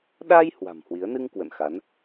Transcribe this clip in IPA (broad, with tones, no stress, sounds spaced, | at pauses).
ɗ a˧ j h w a̤˨˩ m h w i˨˦ ə̯ n ɨ˧ ŋ k w ə̰˧˨ n x a˨˦ n